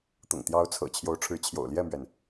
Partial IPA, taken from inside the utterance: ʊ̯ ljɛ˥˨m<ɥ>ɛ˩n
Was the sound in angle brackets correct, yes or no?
yes